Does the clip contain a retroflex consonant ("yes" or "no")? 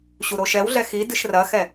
no